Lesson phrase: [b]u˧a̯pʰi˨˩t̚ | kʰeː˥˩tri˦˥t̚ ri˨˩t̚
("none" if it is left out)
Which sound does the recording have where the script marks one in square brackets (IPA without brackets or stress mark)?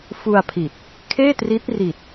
f